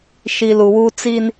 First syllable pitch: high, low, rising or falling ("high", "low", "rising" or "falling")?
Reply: low